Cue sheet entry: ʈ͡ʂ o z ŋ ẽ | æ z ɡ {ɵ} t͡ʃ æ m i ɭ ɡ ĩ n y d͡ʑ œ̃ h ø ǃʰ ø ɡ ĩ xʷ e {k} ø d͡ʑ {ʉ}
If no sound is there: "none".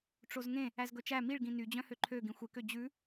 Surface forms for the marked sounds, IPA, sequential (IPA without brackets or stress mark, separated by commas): ɵ, k, ʉ